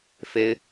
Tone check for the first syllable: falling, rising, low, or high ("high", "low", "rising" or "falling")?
high